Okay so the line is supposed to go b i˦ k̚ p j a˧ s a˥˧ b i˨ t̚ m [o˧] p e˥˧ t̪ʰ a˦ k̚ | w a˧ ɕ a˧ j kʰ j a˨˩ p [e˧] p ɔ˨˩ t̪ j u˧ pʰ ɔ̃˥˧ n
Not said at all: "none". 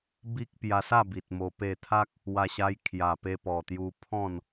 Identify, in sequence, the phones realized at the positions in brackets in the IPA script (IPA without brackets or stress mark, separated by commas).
o˧, e˧